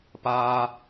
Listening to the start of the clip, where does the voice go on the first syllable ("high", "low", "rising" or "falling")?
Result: high